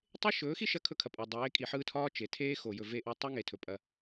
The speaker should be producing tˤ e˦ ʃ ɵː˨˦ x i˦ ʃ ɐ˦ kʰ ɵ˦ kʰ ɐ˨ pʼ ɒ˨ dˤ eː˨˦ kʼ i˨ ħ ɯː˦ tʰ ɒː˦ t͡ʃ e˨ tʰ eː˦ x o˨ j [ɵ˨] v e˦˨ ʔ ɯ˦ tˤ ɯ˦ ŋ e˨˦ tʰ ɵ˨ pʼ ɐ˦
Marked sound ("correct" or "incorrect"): correct